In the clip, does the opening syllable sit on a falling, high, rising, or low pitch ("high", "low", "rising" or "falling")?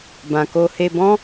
low